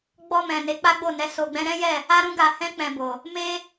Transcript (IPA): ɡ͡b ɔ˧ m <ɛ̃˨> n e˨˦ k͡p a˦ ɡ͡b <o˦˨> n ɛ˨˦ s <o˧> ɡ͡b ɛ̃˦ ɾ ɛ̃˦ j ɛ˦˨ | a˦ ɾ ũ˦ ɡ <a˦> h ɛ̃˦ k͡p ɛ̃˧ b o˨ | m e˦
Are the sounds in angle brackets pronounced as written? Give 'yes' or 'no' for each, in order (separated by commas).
yes, yes, yes, no